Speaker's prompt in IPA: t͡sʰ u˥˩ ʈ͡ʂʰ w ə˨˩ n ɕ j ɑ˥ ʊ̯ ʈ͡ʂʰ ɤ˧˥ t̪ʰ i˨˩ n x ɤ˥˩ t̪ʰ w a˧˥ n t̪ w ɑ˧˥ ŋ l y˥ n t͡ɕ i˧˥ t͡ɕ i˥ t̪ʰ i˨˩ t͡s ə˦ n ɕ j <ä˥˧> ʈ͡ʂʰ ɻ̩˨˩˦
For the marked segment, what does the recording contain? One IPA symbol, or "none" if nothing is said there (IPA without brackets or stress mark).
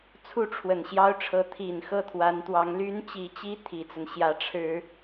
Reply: ä˧˥